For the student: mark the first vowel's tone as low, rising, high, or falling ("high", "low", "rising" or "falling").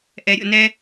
low